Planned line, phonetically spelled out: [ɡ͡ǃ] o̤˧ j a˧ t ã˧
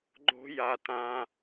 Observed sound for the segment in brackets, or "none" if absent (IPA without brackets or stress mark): ɡ͡ǃ